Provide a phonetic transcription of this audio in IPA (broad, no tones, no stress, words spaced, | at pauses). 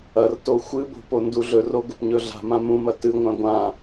ɐrto xʷɨbo̤ ponduɮɵro ɡɵpɲɵɮa̤mã mũmɐ tɨŋʷã ɡʷã